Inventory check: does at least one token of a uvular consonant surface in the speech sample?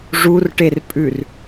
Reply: no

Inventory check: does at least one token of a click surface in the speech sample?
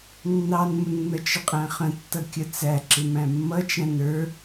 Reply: yes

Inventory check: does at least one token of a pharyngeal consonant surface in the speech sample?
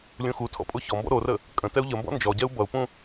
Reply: no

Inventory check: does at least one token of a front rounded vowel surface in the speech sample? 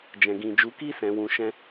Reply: no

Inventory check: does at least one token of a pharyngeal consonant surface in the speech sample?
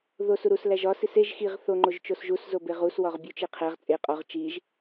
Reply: no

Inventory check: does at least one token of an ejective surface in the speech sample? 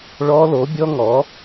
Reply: no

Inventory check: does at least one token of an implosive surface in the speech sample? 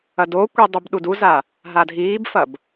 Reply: yes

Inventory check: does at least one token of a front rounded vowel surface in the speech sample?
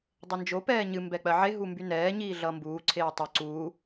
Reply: yes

